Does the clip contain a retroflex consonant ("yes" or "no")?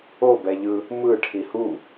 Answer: yes